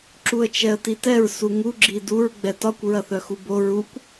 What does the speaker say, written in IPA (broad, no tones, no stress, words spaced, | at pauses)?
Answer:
ǁuə̯t͡ʃɛə̯titɛɹ suŋu ɡ͡ǁiduɹ ɡ͡bɛtɒkʷ ɹɐθœxubo ɹukʷ